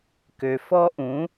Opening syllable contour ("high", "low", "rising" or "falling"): low